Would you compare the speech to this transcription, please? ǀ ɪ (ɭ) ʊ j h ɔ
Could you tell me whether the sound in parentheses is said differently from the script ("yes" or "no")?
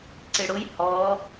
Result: yes